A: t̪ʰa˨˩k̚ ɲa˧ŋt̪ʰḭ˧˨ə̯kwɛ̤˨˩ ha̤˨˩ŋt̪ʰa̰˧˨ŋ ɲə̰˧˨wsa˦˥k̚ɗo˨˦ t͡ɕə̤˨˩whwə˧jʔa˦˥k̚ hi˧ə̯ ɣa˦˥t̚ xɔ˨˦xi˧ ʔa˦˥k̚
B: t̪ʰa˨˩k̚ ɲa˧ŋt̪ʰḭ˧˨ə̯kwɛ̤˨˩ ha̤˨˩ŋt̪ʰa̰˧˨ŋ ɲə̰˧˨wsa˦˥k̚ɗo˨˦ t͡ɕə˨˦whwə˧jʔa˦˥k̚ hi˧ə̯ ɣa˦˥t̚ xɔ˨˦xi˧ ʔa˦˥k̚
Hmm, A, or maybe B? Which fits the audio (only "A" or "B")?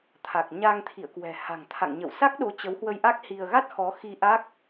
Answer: B